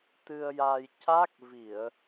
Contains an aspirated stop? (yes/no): no